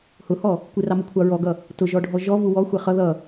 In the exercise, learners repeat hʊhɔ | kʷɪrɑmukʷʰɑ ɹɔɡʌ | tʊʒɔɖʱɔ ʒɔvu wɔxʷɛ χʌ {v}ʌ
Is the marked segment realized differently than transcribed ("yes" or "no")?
yes